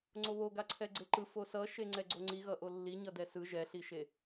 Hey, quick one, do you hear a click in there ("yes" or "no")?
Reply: yes